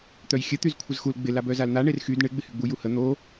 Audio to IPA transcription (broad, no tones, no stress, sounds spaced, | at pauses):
t̪ œ j xʲ ə t̪ y z kʷʰ ə z x u l ɡ͡b ɪ l a b œ z a l n̪ a ɳ e r x y d ɳ ɪ ɡ͡b ɪ h y ɡ͡b u j u h ə n̪ o